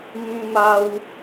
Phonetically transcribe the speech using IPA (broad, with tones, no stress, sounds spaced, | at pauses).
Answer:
m ĩ˦ m a˦ w